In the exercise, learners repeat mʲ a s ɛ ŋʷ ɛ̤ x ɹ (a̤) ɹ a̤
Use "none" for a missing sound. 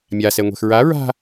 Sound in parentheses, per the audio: a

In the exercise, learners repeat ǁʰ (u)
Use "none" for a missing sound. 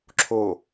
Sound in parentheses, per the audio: o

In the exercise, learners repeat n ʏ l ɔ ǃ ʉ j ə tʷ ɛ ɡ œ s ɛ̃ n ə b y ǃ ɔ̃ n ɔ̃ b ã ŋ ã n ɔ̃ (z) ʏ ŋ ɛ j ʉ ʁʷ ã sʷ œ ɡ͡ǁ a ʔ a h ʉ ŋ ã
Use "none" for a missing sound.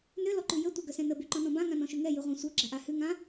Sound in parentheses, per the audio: ʃ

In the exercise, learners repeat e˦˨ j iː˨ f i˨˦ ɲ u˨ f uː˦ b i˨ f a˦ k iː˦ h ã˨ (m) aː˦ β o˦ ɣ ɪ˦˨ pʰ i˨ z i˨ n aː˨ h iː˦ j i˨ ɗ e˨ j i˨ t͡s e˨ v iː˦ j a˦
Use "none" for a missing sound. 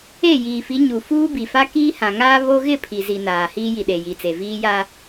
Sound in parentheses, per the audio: ŋ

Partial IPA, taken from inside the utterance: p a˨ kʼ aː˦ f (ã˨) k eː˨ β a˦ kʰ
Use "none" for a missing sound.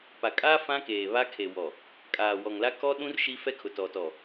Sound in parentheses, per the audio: ã˦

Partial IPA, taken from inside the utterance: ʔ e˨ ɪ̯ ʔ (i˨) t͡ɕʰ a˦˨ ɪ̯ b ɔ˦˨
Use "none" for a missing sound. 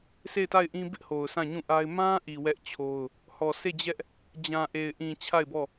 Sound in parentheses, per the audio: ĩ˨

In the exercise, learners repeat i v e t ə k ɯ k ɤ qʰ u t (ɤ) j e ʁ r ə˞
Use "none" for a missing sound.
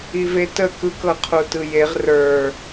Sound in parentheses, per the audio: ɯ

